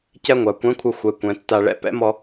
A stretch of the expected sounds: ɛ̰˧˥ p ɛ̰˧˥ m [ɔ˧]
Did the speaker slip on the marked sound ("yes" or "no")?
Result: no